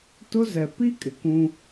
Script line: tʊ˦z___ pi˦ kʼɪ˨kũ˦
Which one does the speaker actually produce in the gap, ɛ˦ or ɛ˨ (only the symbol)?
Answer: ɛ˨